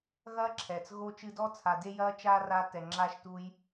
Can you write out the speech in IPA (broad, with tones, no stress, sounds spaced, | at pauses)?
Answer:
ɣ ɐː˥ ǁʰ ɛː˩ t͡s ɣ o˦ t͡ʃ ɨ˦ d ɔː˥ t͡sʰ a˨ d e˥ j ɐː˥ t͡ʃ aː˥ r a˦ t ɛ˨ ŋ͡ǁ aː˦ ʃ t u˦ j